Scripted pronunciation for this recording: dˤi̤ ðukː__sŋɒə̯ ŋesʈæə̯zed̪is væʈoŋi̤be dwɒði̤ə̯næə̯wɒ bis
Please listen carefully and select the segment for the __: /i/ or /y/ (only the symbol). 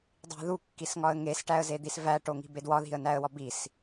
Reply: i